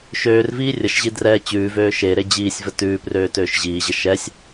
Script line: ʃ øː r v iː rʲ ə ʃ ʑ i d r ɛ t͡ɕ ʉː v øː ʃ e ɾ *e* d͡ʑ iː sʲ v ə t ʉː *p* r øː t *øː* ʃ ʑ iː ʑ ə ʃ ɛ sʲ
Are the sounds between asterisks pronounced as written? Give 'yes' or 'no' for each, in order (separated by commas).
yes, yes, yes